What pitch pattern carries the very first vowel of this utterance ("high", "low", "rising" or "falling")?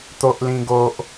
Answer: high